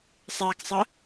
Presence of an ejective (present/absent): absent